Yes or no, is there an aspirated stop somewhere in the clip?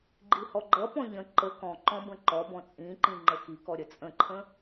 yes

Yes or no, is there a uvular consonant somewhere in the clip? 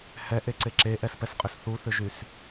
yes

